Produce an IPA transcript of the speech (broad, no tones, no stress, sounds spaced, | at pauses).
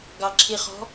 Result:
ɡ ɑ ǁʰ i χ ɔ̤